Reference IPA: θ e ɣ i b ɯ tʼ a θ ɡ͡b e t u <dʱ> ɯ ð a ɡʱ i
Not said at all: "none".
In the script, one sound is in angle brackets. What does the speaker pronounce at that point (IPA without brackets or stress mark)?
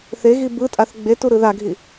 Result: ɾ